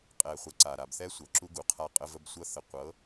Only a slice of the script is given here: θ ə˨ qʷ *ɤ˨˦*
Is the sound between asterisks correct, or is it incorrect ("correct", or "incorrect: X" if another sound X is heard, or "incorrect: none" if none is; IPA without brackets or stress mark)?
correct